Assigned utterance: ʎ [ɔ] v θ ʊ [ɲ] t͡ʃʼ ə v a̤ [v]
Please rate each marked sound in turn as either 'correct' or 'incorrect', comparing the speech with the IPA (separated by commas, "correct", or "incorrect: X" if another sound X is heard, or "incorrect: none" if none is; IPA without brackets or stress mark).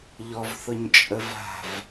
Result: correct, correct, correct